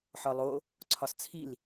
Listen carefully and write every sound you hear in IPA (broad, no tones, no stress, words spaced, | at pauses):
ħɒlˠo | ǀʰɒst͡sʰil